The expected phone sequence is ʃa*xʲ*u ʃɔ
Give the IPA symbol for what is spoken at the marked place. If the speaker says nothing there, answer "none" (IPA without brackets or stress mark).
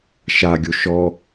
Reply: ɡʲ